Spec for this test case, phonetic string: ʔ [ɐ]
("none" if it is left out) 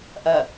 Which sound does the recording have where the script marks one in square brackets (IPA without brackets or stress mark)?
ɐ